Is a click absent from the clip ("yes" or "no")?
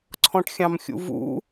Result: no